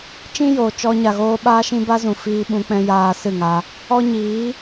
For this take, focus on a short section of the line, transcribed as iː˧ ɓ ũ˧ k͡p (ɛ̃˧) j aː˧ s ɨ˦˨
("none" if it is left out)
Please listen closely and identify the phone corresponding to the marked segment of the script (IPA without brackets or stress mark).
ɛ̃˧